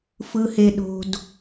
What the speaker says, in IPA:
fɯ˩he˩ɗo̤˩d

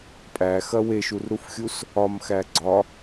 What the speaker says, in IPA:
pʼæxɐ weʃurɾufxʲus | ɒmxæ ɡ͡ǀɒ

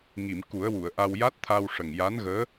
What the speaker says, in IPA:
ŋi˨˩˨m ku˨˩˦ə̯wu˨˩˨ə̯ʔa˧w ja˦˥t̚t̪ʰa˧w ʂə˨˩ŋja˧˥nɣəː˧˥

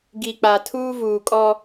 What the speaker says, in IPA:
ɡi˨k͡pa˨ tʰuː˦vuː˨kʼɔ˦

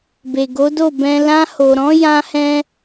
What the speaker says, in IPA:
be˨ ɡo˨˦do˦˨ bɛ̃˧ lã˧ho˨ɾɔ̃˨˦ jã˦hɛ̃˦

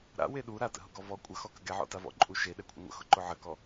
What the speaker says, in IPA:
ɾa̰we ɗu ɾatə̰ɦʊ ɡɔvɔ kʷʼəxɔ kəɡɛʕɔ̰ta vɔ̰ǃʼuʃe ɗɛkʷʰə̰ŋʷə̰ xʊǃʊʕəkɔ

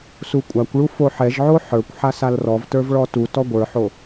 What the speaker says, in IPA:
sukʷʼakʷɭu foħɛʒʕo ħə˞kʷ ħasalrɔvtə˞v ɭɔtutɔ ɡʷə˞ħo

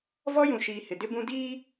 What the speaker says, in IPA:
vɔ˦jũ˨ʃiː˨ hɪ˨dɪ˦bũ˦ diː˦

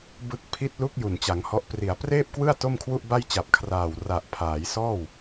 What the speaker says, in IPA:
bɯ˦˥k̚ pʰi˦˥t̚lu˦˥k̚ ju˨˩nt͡ɕa˩˦ŋhɔ˦˥ʔpri˨˩a̯ preː˥˩p̚kwɯ˥˩a̯ to˥˩mkʰwu˥˩ʔba˥˩jt͡ɕa˨˩p̚ kʰraː˨˩w ra˨˩ʔpʰaː˩˦jsɔː˥˩w

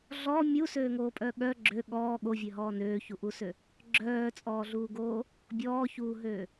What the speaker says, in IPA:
ɮɔ mʲusøːŋoːpʼœ ɠœ ɡ͡ǁø ɠɔː ɠovʲøɦɔː nøːçuʔusø | ɡ͡ǁœːt͡sʼɔːɮuːɡoː | bʲɔːçuːɦøː

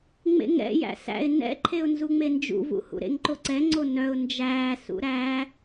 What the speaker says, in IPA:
ŋ͡mḛŋɛ̰jæ̰ sæ̰ɪ̯ nɛ̰ǃʰeʊ̯ nzuŋ͡mend͡ʒṵvṵ hṵɾḛŋǃoǀɛ ŋ͡ǀonœʊ̯ nd͡ʒæː sṵɾæ

